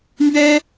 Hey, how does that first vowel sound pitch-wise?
high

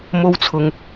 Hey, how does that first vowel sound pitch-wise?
high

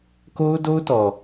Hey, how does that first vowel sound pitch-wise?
high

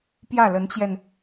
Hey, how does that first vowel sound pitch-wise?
falling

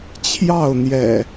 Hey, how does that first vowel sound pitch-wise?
falling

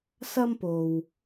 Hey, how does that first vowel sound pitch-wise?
high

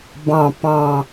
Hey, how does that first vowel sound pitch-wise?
falling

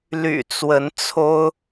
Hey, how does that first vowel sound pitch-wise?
low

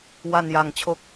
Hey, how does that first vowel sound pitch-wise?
low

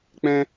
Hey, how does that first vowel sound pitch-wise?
high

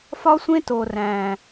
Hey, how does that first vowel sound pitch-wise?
high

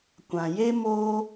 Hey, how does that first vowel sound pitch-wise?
low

